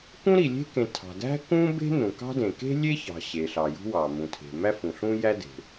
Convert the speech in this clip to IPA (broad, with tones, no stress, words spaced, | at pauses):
kũ˥ɾi˩lʲe̤˥kẽ˩ tʰɑ̤˩ dæ̤˥kũ˥be̤˥ nũ˩kɑ̤˥dẽ˩ ke̤˥lʲe˥çɑ̤˩ ɕe˩ɬɑ˩jṳ˥wɑ˩ mũ˩tʰe̤˩ mæ˥fũ˩ɬũ˥ jæ˥de̤˩